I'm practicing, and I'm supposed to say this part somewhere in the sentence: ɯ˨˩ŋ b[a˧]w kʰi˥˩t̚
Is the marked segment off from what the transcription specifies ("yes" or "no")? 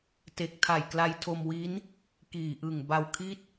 no